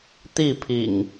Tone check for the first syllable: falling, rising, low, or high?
falling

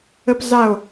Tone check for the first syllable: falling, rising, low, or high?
high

